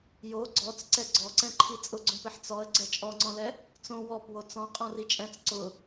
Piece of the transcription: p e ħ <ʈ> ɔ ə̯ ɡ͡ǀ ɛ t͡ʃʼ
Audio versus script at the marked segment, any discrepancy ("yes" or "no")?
yes